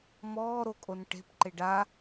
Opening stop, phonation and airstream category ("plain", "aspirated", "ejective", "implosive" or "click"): ejective